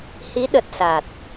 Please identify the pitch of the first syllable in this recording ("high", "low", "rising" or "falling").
rising